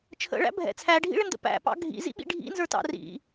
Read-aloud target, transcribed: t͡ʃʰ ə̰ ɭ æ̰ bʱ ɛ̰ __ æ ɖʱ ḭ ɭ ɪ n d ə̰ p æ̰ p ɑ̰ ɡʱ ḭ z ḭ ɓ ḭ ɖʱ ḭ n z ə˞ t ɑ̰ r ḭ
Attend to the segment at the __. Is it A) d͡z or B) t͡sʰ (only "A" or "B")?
B